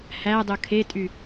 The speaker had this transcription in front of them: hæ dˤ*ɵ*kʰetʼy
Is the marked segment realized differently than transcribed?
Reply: no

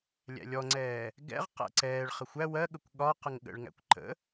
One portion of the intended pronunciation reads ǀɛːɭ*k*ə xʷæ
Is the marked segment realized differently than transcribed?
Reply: yes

